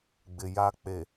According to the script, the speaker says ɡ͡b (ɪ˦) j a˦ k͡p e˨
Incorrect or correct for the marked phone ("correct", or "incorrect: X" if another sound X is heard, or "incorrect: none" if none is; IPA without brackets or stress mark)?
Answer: incorrect: ɪ˨